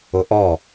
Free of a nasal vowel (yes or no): yes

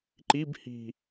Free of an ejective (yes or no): yes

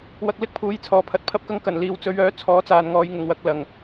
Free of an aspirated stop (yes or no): no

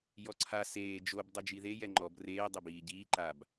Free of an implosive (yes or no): yes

